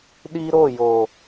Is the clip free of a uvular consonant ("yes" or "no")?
yes